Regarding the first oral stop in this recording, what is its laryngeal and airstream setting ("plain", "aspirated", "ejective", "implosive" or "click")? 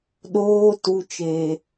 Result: implosive